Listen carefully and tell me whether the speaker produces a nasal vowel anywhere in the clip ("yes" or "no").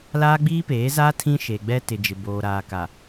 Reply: yes